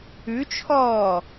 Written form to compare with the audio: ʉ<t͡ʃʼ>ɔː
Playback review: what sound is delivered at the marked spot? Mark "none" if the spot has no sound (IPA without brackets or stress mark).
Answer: t͡ʃʰ